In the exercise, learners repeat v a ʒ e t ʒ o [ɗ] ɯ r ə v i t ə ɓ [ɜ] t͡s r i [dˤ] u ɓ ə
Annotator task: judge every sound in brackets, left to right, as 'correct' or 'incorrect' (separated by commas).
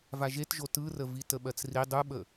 incorrect, correct, correct